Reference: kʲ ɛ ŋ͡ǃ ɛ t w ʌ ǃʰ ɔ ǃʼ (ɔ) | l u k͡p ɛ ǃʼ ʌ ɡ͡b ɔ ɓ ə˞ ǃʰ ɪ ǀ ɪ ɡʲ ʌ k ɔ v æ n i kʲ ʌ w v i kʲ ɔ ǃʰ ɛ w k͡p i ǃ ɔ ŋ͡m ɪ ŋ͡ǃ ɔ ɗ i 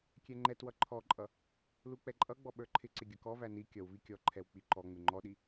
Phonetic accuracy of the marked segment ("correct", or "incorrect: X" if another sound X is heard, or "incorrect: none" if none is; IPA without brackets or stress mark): incorrect: ʌ